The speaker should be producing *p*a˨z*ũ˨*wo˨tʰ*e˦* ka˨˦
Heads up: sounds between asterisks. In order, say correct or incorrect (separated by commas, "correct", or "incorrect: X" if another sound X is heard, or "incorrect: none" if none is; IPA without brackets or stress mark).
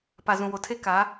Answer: correct, correct, correct